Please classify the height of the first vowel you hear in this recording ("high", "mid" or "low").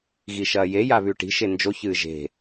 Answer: high